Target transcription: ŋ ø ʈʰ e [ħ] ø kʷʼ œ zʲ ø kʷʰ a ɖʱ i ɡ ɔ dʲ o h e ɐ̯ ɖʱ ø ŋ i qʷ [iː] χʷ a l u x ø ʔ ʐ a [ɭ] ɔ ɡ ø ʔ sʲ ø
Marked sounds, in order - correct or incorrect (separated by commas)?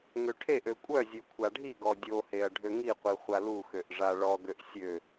incorrect, incorrect, correct